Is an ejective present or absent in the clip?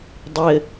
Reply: absent